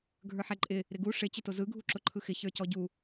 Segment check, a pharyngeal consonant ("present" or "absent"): present